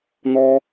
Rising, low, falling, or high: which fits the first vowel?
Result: high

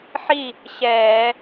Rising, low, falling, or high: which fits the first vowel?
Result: falling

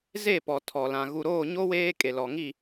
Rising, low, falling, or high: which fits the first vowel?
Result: falling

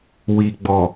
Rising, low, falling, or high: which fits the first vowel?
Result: low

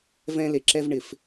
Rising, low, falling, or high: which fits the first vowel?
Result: high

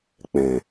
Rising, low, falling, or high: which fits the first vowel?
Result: low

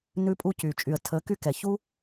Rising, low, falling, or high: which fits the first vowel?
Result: high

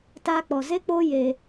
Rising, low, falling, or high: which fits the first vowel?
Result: high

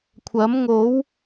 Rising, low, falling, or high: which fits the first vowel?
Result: rising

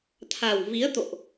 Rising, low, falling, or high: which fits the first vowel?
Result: low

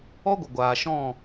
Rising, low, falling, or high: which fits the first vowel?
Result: high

